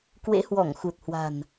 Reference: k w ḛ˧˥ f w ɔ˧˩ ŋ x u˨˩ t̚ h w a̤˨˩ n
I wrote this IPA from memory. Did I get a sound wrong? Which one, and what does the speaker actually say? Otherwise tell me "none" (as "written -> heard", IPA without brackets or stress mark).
f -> h